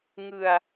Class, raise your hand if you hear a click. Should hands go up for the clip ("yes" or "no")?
no